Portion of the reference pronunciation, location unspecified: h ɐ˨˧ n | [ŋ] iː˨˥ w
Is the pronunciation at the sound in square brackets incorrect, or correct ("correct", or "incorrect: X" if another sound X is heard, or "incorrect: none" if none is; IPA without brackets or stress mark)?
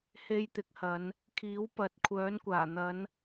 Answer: incorrect: kʰ